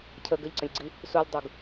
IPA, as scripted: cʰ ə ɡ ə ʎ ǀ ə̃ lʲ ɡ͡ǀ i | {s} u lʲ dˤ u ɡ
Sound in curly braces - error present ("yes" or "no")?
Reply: no